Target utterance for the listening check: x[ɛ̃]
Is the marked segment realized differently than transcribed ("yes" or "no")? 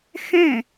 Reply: no